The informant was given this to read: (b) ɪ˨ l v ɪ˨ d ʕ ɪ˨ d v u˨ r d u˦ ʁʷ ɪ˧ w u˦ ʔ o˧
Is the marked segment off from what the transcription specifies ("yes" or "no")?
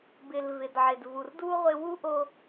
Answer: no